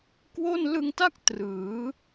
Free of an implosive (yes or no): yes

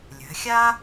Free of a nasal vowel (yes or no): yes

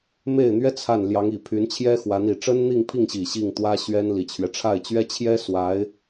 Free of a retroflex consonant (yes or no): no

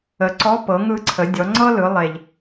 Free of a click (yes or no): no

